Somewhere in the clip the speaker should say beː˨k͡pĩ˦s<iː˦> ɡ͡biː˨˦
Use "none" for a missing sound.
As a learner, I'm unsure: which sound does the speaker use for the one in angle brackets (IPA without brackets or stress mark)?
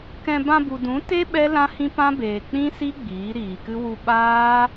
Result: i˦